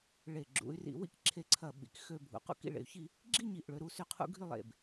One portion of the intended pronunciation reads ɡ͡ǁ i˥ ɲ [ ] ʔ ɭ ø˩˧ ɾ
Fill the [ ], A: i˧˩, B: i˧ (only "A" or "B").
A